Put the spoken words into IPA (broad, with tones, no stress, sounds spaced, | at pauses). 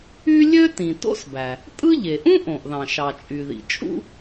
y˥ lʲ ø˥ t ĩ˩ t o̰˥ s b æ˩ | tʼ ɯ˥ ʎ e˩ ʔ ũ˥ ʔ õ˩ ʔ ð ɑ̃˩ ʃ ɑ˩ t͡ʃʼ y˩ ð ḭ˩ t͡ʃʼ ṵ˥